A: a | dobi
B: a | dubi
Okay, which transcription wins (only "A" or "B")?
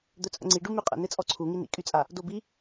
A